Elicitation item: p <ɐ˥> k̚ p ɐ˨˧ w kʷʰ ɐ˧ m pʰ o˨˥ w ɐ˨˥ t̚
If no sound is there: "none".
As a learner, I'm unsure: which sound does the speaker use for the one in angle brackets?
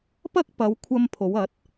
ɐ˥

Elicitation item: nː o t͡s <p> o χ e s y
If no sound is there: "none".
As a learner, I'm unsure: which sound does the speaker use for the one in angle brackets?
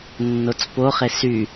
p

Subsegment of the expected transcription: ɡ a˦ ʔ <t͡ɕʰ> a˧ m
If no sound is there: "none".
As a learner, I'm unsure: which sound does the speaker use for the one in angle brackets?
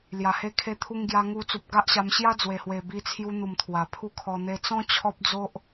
ɕ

